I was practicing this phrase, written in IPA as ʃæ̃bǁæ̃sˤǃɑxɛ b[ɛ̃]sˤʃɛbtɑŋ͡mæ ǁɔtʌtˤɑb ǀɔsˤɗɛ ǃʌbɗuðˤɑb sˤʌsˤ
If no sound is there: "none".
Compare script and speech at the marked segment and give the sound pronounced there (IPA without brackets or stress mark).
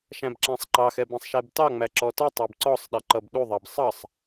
ɛ̃